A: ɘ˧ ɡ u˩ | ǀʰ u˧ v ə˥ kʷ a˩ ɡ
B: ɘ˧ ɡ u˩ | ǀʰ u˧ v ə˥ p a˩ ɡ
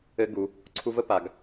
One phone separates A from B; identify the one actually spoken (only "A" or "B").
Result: B